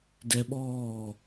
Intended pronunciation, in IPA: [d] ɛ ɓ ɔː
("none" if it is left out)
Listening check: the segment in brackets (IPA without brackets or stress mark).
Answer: d